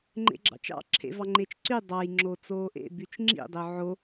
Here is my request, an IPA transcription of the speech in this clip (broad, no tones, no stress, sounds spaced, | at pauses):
ŋ͡ǃ ḛ ɡ͡ǁ ɑ̰ t͡ʃ ɑ̰ ǁʰ ḛ v ɑ ŋ͡ǃ e t͡ʃ ǀ y dˤ ɑ j ŋ͡ǁ o t͡s oː ʔ ḛ b y t͡ʃ ŋ͡ǁ ḭ dˤ ø ʕ o